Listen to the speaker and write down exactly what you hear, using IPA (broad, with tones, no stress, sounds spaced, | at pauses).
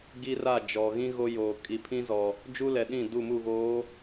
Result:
ɡ i˦ r a˦˨ d͡ʒ ɔ˨ ɣ ĩ˦ ɣ o˦ j oː˨ kʼ i˨ pʰ ĩ˦ z ɔ˨ | d͡ʒ u˦ l ɛ˨ ɗ ĩ˦˨ d u˦˨ m u˦˨ ɣ oː˨˦